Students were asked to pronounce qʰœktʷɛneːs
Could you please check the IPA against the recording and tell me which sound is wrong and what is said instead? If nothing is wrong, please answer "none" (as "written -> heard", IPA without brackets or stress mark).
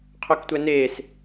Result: none